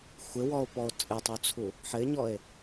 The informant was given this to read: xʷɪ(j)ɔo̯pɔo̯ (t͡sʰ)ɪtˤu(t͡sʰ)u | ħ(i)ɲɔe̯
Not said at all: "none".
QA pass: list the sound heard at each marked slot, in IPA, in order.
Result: w, t͡sʼ, t͡sʰ, ɪ

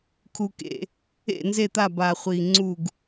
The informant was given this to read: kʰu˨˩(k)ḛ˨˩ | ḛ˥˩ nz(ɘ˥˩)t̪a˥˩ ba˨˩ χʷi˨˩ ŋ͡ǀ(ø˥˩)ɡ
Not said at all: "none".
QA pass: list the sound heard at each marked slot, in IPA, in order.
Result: k, e˥˩, u˥˩

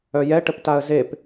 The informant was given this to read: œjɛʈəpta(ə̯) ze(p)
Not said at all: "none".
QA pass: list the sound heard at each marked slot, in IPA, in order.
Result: ə̯, p

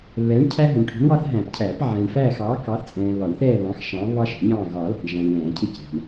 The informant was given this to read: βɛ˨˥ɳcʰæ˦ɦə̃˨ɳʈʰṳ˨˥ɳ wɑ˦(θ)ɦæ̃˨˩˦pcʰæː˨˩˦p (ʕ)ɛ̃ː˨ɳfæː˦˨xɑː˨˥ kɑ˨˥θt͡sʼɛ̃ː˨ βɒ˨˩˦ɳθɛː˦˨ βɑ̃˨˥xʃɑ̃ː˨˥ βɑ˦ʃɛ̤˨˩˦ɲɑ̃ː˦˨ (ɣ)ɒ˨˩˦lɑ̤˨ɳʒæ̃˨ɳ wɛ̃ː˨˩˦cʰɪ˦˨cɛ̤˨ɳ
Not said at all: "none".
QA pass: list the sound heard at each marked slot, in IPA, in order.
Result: θ, ʕ, ɣ

